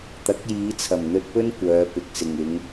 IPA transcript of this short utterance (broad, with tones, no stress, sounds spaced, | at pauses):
t̪ ɐ˨˥ k̚ j iː˨˧ t͡sʰ ɐ˨˩ m n̪ ɵ˧ t̚ p ɵ˥ n kʷ œː˨˧ p ɪ˨ k̚ s ɪ˨ ŋ ɪ˨˧ ŋ